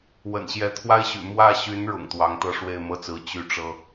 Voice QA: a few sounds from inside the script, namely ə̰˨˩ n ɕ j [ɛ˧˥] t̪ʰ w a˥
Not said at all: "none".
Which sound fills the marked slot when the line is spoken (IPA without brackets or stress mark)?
ɛ˧˥